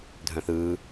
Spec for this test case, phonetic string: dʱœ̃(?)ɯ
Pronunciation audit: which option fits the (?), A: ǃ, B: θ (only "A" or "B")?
B